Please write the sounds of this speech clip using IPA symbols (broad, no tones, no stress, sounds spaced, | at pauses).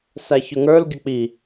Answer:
s æ ç ʊ ŋ ə˞ l ɡʲ ə k͡p i